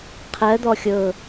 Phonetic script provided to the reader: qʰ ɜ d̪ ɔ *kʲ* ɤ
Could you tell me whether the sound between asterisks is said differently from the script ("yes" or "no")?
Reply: yes